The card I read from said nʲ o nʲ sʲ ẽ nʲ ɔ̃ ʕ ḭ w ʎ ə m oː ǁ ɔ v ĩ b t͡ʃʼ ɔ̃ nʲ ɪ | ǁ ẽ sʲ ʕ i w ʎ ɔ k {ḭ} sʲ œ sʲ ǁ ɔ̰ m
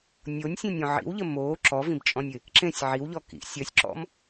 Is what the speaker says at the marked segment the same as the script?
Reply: yes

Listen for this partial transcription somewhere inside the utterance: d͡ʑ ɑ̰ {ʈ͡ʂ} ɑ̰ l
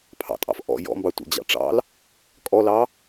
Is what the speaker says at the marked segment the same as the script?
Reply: yes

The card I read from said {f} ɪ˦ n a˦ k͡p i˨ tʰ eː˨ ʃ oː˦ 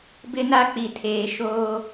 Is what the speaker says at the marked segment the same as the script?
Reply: no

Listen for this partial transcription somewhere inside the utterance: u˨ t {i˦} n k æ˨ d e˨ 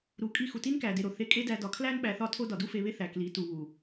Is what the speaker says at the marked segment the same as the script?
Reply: yes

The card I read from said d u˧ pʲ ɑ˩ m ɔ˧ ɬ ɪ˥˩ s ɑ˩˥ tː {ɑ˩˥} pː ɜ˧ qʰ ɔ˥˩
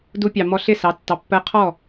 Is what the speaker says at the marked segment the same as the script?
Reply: yes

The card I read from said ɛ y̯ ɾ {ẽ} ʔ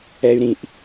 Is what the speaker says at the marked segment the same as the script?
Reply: no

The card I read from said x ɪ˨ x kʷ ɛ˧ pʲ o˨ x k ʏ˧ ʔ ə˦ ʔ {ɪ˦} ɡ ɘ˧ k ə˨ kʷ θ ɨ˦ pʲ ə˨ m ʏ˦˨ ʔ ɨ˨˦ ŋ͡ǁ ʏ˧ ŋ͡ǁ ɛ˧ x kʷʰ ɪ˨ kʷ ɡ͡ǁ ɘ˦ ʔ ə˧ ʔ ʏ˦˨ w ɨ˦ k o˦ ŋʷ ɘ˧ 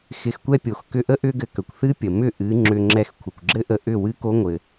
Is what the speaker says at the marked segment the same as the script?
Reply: no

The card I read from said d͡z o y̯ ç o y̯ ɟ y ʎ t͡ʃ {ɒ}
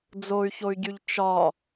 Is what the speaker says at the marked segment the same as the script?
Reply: yes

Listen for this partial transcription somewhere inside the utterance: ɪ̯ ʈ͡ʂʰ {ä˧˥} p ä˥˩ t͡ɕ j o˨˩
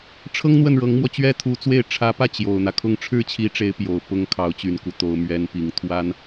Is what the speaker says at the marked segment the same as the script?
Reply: yes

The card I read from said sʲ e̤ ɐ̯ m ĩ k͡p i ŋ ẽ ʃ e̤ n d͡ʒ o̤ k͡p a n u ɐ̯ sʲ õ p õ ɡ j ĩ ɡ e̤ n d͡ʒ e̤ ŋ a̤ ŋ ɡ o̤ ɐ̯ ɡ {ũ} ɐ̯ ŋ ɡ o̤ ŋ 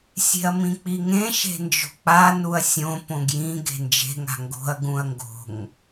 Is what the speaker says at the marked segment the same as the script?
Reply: yes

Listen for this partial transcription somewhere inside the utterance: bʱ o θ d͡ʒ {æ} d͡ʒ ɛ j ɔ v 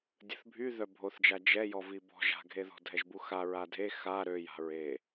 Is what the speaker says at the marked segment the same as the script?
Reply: no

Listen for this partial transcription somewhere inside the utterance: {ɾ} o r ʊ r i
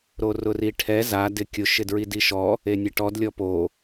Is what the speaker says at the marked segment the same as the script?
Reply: yes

